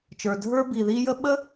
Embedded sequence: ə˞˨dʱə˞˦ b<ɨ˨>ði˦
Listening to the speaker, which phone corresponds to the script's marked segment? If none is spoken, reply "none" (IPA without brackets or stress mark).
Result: i˨